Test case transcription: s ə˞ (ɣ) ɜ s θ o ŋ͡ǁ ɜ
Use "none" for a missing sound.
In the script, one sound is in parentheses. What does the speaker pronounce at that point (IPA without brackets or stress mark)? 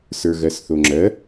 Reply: ɣ